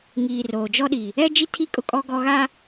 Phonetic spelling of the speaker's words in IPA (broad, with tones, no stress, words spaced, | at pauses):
ŋiː˨roː˨d͡ʒɔ˦ɗi˨ | ɛ˦d͡ʒi˦tʰi˦ kʼʊ˦kʼɔ˦ɡɔ˦ ɣa˦